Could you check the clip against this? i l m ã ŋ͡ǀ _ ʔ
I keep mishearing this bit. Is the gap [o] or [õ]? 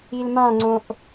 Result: õ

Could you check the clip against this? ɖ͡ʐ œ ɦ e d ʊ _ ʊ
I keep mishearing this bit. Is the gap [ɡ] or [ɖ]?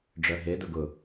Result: ɡ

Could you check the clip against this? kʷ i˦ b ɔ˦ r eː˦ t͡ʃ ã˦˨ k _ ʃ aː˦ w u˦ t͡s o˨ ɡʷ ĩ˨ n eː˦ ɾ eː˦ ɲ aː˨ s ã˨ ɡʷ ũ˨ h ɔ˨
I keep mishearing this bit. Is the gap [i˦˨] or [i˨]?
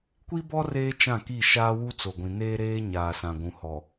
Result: i˦˨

